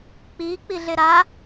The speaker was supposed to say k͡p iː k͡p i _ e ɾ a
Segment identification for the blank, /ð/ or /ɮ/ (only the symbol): ɮ